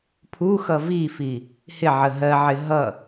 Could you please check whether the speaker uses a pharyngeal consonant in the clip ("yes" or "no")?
yes